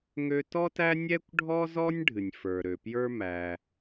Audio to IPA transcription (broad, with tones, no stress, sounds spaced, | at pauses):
ŋ ø˥ t ɔ˥ t æ˥ nʲ ɛ˥ kʷ ɖʱ ɔ˥ z ɔ˥ nʲ ɖʱ ɨ˩ nʲ f ə˞˩ ɾ ø˩ p j ə˞˥ m æ˩